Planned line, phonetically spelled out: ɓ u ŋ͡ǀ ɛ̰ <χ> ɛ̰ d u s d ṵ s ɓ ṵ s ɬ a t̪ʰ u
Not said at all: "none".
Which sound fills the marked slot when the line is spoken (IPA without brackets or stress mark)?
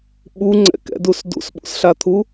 k